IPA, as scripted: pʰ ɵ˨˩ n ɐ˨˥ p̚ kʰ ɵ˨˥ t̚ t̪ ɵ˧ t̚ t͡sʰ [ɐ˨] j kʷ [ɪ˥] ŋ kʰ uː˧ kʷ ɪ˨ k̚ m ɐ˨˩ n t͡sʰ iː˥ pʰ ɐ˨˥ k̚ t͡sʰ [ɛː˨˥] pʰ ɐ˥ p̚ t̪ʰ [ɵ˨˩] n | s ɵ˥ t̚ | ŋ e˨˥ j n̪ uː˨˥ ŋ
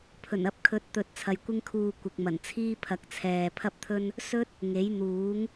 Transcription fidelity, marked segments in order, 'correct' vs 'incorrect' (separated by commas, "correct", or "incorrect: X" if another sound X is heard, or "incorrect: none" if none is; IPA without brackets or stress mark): correct, correct, incorrect: ɛː˨, incorrect: ɵ˥